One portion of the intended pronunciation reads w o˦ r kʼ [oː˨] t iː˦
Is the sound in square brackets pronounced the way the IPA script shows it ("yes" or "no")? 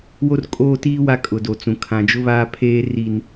no